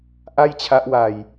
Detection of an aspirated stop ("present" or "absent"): present